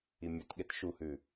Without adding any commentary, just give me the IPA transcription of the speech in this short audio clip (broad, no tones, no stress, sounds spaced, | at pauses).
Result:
i mʲ u t ɠ e t ʃ u h ʉ